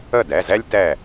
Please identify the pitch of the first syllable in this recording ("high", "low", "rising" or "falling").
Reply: falling